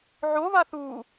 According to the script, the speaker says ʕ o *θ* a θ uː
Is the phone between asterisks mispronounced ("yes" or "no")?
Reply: yes